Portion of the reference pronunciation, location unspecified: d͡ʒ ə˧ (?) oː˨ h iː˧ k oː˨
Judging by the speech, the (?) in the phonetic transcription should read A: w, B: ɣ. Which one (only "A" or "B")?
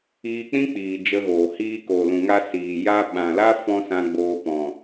B